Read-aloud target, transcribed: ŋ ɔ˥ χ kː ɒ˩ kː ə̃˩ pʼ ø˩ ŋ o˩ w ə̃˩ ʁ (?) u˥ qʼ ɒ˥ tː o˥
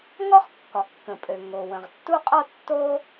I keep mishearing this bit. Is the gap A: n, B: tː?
B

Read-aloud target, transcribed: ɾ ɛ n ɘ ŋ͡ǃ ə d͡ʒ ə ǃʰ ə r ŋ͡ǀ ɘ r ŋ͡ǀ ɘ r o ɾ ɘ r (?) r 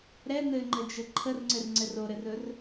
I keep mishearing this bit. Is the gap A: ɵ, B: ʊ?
A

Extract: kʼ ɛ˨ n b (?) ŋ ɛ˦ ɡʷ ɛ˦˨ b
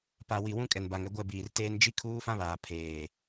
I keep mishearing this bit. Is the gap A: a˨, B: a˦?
A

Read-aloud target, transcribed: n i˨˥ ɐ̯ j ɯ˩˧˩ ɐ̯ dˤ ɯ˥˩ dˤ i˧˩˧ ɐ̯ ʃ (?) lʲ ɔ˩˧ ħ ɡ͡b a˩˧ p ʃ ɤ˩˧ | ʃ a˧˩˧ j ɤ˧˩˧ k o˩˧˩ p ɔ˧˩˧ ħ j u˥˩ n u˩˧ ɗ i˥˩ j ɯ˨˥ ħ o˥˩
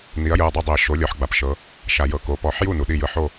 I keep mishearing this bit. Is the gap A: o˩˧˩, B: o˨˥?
B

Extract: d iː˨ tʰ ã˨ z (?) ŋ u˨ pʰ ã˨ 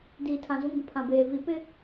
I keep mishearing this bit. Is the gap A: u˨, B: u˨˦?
B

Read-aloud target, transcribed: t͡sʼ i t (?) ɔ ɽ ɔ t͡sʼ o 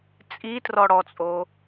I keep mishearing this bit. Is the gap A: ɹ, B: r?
B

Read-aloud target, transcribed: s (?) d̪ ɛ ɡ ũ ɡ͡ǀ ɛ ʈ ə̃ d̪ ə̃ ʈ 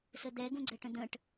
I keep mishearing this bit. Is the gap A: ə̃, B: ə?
B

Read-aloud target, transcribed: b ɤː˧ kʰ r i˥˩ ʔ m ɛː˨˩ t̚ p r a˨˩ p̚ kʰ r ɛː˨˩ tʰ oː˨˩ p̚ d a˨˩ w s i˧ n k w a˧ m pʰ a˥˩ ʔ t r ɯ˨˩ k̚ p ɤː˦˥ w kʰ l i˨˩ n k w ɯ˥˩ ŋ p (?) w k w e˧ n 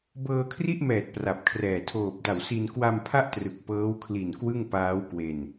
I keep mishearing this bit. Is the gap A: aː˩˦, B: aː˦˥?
B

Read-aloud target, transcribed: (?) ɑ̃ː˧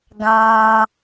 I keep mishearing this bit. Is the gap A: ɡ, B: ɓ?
A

